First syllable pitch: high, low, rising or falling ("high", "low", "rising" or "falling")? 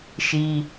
high